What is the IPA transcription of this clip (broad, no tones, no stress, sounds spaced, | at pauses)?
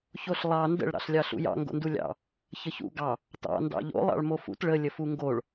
ç o ɬ lˠ ɑ n d ə̰ ɭ ɾ ɑ̰ ɬ lʲ ɑ ɬ ṵ j ɑ̰ ŋ ɡ o̰ n d u lʲ ɑ̰ | ç ə ç ṵ ɡ ɑ | t ɑ̰ n d ɑ̰ ʎ o̰ lˠ ɑ̰ ɭ m o f ṵ t ɭ ə lʲ ə f u ŋ ɡ o ɭ